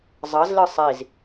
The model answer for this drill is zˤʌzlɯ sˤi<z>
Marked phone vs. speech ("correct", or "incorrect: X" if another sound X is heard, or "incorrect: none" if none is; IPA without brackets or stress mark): correct